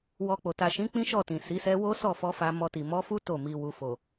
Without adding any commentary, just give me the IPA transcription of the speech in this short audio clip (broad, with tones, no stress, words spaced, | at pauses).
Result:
wɔ˧k͡po˨ ta˨ʃĩ˨˦ k͡pĩ˦ʃɔ˦˨ tĩ˨si˨˦sɛ˦ wo˦sɔ˦˨fɔ˧ fa˧mɔ˧ti˨ mɔ˨˦fu˦ to˦˨mi˧ wu˨fo˨